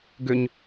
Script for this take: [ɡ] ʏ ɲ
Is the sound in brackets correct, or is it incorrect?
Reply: correct